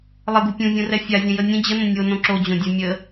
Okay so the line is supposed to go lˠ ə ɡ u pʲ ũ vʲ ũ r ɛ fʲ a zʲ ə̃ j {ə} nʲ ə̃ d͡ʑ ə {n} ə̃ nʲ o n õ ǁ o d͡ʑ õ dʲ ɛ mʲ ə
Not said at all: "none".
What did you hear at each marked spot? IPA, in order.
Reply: ə, n

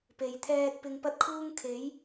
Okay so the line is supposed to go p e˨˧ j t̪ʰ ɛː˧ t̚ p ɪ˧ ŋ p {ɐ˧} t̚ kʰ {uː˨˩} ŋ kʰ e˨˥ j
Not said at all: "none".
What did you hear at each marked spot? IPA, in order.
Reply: ɐ˥, uː˧

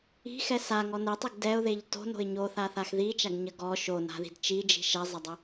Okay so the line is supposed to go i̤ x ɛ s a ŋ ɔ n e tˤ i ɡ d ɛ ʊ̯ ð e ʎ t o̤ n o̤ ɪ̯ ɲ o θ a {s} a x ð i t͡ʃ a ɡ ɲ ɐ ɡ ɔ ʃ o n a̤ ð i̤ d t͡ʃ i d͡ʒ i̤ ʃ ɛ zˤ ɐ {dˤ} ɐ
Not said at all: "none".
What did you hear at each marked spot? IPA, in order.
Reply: θ, dˤ

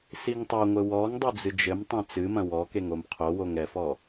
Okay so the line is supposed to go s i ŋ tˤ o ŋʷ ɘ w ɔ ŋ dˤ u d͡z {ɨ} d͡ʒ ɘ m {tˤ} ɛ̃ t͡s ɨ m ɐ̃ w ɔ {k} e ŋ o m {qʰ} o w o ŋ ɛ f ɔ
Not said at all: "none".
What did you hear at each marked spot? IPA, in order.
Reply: ɨ, tˤ, k, qʰ

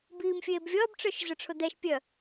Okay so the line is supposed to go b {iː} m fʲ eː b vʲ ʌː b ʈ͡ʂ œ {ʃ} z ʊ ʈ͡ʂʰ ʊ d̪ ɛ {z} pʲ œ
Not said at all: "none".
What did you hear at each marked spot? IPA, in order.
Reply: iː, ʃ, ʃ

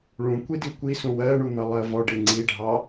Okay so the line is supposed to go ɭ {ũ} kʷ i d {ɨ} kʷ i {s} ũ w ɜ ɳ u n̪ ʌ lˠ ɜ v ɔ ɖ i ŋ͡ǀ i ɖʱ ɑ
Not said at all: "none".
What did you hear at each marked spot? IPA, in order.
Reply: ũ, i, s

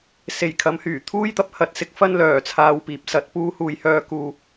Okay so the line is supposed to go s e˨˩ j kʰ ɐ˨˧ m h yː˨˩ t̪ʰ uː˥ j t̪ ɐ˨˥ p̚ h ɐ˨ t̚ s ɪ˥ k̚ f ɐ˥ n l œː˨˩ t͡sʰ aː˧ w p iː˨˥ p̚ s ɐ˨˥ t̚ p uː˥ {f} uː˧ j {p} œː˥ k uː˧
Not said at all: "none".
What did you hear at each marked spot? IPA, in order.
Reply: h, h

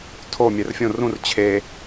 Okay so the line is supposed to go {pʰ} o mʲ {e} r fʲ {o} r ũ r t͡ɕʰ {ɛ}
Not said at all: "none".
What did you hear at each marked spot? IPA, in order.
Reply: tʰ, ɛ, õ, e

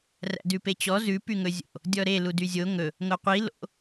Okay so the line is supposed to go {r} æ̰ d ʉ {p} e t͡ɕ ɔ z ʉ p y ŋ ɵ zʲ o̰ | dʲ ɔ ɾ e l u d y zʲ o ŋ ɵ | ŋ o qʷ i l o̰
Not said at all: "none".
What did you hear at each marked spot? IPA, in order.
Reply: r, p

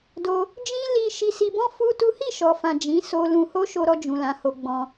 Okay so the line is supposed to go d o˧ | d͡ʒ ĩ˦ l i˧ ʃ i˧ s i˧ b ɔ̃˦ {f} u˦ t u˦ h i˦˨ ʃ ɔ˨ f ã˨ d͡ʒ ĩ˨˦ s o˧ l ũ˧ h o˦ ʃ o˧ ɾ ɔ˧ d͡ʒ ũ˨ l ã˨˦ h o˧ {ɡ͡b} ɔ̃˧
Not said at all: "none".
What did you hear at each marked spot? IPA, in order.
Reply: f, ɡ͡b

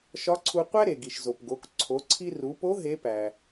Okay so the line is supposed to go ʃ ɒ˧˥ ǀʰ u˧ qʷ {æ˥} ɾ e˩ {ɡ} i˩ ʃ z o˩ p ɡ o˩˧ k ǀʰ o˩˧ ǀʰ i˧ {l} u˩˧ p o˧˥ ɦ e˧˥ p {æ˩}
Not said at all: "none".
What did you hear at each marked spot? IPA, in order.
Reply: æ˥, ɡ, r, æ˩

